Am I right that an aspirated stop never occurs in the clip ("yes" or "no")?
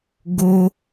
yes